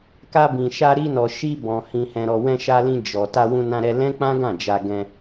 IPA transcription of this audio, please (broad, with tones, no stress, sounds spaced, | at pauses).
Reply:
k a˧ b ĩ˨ ʃ a˧ ɾ i˧ n ɔ˨ ʃ i˧ b ɔ̃˨ h ĩ˨ h ɛ̃˨ ɾ ɔ˨ w ɛ̃˧ ʃ a˧ l ĩ˧ d͡ʒ ɔ˨ t a˧ w ũ˧ n ã˧ ɾ ɛ˧ l ɛ̃˦ k͡p ã˦ ɡ ã˦˨ d͡ʒ a˧ ɡ ɛ̃˧